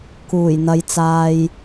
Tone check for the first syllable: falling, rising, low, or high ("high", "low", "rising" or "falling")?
low